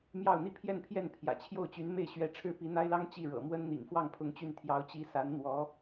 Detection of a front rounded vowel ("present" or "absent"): present